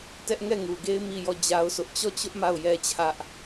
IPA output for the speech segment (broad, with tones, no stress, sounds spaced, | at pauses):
t ɛ˦ ʔ ŋ ɛ˦˨ ŋ u˨ ɡ e˦ ɪ̯ m i˦˨ j ɔ˦˨ d͡ʑ a˦ ʊ̯ sʰ ʊ˦ ʔ t͡ɕ ɔ˦˨ t͡ɕ ʊ˦ ʔ m a˦˨ ʊ̯ j ɛ˦ t͡ɕʰ ä˦ ʔ